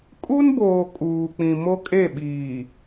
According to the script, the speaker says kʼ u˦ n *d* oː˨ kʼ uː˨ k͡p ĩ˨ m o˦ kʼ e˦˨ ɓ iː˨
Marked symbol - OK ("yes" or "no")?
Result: no